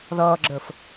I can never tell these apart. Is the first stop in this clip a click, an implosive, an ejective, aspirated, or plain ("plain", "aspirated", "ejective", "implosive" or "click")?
click